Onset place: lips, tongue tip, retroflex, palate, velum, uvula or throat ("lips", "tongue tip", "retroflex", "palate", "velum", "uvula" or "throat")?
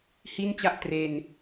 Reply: throat